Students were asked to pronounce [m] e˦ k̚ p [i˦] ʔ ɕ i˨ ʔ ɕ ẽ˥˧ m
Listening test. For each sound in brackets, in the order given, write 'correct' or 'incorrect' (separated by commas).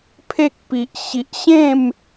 incorrect, incorrect